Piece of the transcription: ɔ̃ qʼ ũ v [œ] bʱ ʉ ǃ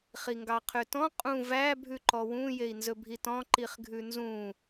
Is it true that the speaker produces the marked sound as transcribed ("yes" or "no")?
no